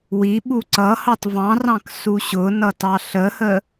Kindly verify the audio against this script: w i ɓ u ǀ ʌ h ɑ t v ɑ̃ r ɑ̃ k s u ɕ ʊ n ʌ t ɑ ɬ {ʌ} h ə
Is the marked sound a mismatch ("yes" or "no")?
yes